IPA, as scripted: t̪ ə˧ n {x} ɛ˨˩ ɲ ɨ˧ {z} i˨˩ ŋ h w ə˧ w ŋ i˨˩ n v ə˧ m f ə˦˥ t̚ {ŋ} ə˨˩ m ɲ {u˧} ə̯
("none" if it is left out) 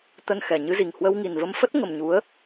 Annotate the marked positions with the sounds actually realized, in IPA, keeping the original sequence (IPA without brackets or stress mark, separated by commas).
x, z, ŋ, u˨˦